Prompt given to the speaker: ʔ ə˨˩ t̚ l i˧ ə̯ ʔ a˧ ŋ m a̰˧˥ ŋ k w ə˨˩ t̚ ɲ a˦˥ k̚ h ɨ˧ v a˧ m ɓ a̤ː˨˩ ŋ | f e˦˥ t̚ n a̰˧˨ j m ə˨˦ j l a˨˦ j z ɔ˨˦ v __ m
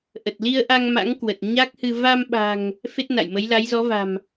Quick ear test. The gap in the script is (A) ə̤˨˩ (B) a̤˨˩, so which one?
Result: B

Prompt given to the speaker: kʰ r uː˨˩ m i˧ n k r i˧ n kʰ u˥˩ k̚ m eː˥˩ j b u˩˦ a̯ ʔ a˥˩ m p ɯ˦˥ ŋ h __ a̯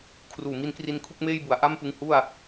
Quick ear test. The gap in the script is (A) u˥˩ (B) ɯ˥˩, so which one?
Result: A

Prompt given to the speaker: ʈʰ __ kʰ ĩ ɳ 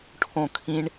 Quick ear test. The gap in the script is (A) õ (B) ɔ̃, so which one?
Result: A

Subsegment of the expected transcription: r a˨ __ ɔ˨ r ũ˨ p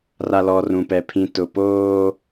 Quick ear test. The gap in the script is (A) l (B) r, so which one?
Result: A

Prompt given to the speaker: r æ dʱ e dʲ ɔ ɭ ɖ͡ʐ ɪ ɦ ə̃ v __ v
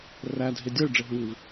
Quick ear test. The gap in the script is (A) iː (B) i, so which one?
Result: B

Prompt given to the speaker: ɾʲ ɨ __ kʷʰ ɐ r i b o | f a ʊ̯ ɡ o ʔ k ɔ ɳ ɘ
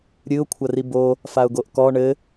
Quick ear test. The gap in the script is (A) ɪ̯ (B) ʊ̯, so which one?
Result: B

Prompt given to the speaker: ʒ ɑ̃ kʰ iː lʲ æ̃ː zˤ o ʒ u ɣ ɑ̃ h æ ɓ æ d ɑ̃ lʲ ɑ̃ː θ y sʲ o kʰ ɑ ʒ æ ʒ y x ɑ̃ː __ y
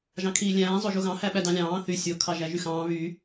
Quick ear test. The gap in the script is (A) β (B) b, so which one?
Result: A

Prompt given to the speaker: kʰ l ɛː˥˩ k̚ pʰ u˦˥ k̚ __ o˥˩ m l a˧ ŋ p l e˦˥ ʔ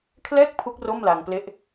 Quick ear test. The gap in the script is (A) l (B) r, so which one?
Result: B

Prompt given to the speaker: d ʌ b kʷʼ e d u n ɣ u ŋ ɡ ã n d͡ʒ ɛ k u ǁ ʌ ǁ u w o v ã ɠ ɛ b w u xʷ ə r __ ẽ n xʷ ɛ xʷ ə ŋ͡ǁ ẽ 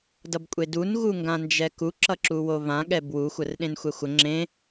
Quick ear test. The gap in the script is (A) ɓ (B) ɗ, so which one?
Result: B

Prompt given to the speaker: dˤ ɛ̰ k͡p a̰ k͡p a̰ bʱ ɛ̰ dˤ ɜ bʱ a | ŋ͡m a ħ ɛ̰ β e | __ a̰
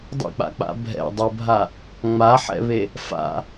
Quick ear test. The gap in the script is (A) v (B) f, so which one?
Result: B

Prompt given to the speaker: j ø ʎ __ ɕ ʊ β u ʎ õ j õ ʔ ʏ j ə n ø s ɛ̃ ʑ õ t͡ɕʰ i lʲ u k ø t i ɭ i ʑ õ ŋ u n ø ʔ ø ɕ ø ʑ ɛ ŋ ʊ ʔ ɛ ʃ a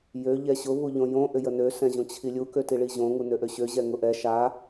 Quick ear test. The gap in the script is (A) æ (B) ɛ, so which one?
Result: B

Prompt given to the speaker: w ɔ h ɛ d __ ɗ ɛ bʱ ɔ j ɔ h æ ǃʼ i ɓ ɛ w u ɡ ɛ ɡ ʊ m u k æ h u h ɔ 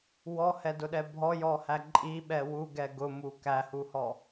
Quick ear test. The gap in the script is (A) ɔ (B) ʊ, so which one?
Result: B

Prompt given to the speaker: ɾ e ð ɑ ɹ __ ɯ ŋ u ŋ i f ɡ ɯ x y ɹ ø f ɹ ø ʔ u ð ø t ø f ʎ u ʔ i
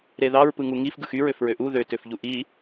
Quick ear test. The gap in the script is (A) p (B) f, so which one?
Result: A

